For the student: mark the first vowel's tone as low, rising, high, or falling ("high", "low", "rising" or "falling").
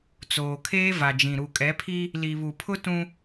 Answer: low